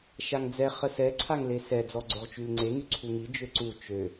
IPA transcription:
ʃ a ŋ d͡z ɛ χ ə s ɛ ǀʰ a ŋ l e s ɛ d͡z ɔ ɡ͡ǀ o ʁ t͡ʃ y l ŋ͡ǀ e ŋ y ǀʰ u ŋ i d͡ʒ ø ǀ u t͡ʃ ø

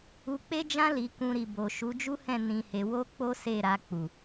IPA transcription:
u˧ k͡p e˦ d͡ʒ ã˦ l i˧ k ũ˧ ɾ i˨ b o˨ ʃ u˨˦ d͡ʒ u˦ h ɛ̃˦˨ n ĩ˧ h e˧ w o˦ k͡p o˦ s e˦˨ ɾ a˧ k͡p u˨

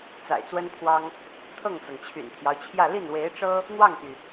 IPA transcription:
t͡s a̰˨˩ ɪ̯ t͡s w ə˥ n pʰ w ɑ˥ ŋ | t̪ʰ ɤ˥˩ ŋ t͡s ɤ˩ ŋ t͡ɕʰ y̰˨˩ n t̪ʰ j ɑ˦ ʊ̯ t͡ɕʰ j ä˥˧ l i˥˩ n w e˧˥ ɪ̯ ʈ͡ʂ ɤ˥ | n̪ w ɑ˥˩ ŋ t̪ y˩

